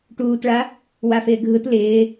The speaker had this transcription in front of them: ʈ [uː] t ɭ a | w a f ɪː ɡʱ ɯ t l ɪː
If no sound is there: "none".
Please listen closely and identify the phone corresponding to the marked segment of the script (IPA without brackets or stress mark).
uː